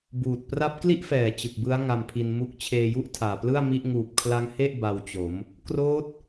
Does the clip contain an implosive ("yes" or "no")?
no